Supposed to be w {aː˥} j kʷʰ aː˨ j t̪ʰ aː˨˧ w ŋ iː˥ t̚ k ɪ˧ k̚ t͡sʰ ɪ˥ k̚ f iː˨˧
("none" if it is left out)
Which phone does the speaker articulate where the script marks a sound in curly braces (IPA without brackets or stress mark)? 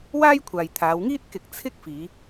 aː˥